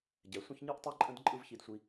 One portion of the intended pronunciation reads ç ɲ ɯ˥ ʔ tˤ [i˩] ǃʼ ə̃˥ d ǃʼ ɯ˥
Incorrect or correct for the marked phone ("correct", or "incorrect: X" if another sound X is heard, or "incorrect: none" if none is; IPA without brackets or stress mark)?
incorrect: i˥